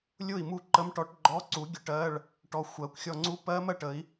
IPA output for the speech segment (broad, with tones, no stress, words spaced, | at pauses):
lʲʊ˥˨i̯mu˥˨ǃə˧˥˧mʈɔ˦˥ʈ ɡ͡ǃɔ˧˥˧ǀu˨˥ɡʲʊ˧˥˧ ʈɜ˧˥˧ɭ | ʈɔ˧ xʷɜ˨˥kʷ xʲɔ˧ŋ͡ǀu˦˥pɜ˦˥mɜ˥˨ʈ ə˨˥i̯